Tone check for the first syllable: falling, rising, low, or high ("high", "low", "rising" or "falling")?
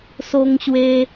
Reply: high